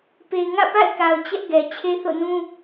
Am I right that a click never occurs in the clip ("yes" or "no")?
yes